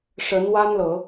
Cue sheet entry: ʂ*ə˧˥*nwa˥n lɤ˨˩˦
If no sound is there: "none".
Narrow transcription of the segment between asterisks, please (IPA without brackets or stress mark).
ə˧˥